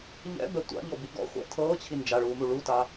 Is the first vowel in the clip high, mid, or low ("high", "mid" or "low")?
mid